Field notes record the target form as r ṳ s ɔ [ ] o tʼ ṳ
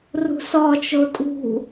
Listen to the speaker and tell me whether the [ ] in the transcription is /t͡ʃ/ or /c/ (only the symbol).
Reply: t͡ʃ